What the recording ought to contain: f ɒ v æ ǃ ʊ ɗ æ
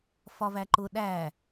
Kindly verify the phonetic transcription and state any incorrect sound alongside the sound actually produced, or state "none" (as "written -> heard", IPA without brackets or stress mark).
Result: none